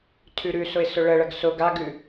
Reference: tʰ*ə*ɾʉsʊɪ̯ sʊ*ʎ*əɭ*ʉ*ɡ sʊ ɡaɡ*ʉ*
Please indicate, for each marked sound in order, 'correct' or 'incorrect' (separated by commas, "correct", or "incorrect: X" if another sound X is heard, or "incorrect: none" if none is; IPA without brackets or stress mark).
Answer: incorrect: ʉ, incorrect: ɭ, incorrect: ə, correct